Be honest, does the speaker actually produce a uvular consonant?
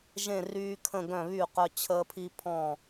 yes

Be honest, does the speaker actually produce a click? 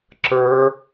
yes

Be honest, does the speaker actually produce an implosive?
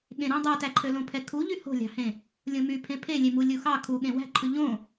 yes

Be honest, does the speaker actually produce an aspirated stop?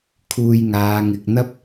yes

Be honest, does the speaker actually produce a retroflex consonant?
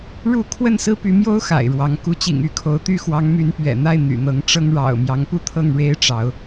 yes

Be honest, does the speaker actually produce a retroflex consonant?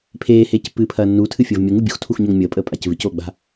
no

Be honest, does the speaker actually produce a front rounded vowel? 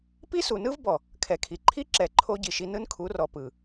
no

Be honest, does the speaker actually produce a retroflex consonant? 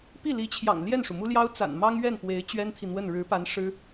yes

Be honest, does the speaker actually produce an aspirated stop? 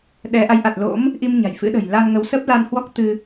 no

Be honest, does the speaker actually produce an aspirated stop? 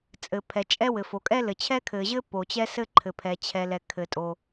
yes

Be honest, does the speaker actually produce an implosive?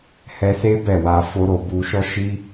no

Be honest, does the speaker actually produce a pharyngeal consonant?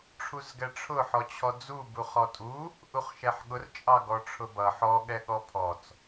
yes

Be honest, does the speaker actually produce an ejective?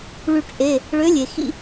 no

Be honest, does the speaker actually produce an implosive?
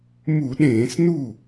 yes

